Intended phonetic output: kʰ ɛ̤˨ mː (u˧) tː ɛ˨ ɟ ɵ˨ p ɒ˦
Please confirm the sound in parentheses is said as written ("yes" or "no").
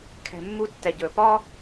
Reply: yes